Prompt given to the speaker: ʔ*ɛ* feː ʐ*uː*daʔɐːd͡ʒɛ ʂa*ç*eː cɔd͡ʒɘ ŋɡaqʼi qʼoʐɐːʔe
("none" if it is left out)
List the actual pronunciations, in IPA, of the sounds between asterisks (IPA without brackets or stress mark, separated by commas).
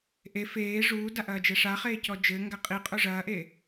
e, uː, χ